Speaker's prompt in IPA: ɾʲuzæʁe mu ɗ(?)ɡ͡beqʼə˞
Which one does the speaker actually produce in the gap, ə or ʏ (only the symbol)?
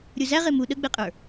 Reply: ə